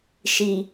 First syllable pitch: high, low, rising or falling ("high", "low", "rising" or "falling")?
low